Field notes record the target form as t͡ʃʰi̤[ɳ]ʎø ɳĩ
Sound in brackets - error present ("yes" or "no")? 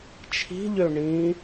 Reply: yes